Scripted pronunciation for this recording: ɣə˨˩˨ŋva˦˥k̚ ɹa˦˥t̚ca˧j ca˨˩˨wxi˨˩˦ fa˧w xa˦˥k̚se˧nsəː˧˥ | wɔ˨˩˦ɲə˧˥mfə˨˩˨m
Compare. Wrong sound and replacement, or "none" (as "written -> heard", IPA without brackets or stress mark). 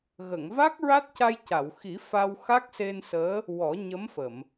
none